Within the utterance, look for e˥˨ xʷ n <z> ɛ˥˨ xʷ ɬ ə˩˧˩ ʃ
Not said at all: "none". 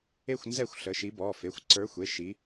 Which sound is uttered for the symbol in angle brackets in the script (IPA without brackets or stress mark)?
z